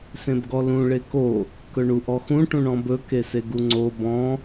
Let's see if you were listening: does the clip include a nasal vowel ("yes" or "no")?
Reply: yes